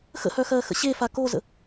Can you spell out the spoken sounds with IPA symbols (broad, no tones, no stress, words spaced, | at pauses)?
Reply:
xə̰hœxɜːxə̰ ɕefa kozə̰